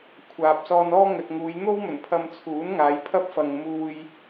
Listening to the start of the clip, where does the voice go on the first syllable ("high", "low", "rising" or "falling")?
low